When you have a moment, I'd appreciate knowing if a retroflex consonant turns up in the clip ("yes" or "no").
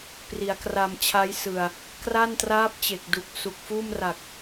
no